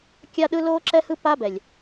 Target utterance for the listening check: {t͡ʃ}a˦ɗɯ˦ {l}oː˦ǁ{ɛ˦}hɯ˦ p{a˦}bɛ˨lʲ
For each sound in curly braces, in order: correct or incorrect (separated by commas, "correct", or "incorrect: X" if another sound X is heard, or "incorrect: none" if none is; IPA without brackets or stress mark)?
incorrect: kʲ, correct, correct, correct